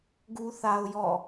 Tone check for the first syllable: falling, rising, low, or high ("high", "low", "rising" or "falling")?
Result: high